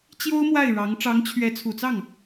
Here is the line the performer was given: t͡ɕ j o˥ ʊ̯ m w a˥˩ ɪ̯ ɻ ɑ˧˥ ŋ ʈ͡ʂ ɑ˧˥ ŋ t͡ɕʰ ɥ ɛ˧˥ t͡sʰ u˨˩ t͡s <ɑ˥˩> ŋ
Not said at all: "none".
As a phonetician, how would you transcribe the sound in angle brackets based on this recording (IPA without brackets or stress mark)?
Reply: ɑ˥˩